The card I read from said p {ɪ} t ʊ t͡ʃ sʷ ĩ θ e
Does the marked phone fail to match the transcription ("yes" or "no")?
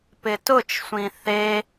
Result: no